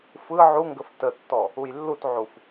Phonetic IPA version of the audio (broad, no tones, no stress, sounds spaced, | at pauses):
f ɯ ʕ u ŋ ɡ ə f t ə tː ɔ | u j lː u t ʕ u f